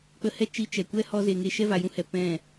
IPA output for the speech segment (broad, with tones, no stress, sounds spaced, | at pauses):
k͡p ə˧ h ɛ˦ t͡ʃ i˧ t͡ʃ ɛ˨ kʷ ɛ˦ h ɔ˧ z e˨ ŋ e˧ ʃ ɛ˦ v a˨ j ũ˦ h ɛ˨ p ɛ̃˦˨